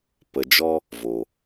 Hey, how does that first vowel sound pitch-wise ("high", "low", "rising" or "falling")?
low